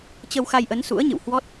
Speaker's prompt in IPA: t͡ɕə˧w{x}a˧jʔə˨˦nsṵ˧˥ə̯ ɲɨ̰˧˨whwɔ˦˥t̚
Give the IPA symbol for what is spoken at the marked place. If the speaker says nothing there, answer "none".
x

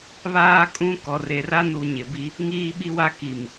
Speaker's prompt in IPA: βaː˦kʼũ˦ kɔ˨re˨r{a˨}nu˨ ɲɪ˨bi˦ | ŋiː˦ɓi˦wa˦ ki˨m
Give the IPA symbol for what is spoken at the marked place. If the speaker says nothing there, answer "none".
a˦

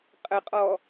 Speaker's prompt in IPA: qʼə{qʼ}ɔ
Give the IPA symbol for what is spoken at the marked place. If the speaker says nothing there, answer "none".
qʼ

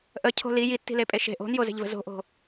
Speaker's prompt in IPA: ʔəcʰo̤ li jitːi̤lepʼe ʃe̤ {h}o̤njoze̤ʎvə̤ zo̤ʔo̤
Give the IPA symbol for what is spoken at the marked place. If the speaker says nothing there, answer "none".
ʔ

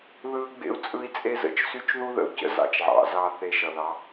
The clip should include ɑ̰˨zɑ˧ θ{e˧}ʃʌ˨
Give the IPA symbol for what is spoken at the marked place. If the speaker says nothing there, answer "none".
e˧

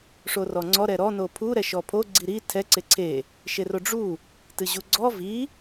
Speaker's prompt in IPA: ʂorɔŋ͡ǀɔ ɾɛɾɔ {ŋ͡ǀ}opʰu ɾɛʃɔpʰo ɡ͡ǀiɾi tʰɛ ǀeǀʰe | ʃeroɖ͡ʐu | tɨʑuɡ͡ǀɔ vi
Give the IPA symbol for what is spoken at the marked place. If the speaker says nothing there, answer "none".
n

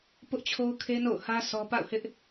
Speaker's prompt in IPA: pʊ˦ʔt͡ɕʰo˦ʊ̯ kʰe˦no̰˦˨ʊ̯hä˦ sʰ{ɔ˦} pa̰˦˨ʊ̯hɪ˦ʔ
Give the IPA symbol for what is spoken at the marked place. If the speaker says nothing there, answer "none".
ɔ˦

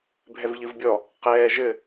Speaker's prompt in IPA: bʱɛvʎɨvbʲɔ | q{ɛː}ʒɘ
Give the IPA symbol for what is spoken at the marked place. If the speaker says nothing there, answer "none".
ɛː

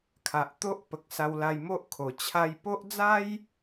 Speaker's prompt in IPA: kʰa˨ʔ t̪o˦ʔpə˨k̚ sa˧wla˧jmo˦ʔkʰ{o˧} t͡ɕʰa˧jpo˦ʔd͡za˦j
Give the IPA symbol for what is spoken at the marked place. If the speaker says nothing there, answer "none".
o˨˩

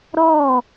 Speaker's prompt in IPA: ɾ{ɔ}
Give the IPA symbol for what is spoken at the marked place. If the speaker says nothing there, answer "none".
ɔ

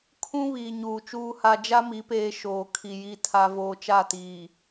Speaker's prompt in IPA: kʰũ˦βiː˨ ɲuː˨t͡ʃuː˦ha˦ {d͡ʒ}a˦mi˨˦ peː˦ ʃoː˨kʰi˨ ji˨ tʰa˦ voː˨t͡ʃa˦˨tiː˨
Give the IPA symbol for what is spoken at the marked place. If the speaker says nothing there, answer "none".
d͡ʒ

